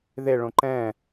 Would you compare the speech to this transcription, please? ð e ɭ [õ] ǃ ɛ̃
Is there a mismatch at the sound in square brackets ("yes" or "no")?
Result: no